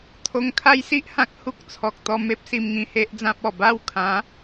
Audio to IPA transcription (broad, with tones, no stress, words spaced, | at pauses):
t̪ʰo˧ŋkʰa˦jsi˦ʔhã˦k̚ hu˦k̚t͡sʰɔ˨k̚t̪ɔ˧ me˦p̚ si˧mŋĩ˧he˦ʔd͡zã˦p̚ ɔ˨˩ba˥˧wkʰã˨˦